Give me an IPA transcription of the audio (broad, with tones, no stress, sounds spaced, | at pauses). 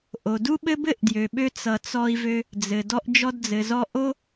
ʔ o˩ d u˥ ɓ ɘ˥ b ɘ˥ ʔ d j ø˩ ɓ ø˧ t͡s ʌ˩ t͡s ɔ˧ i̯ v ø˧ | d͡z ɘ˩ d ɔ˧ ʔ d͡ʒ ɔ˧ d d͡z ɘ˩ z ɔ˧ ʔ o˥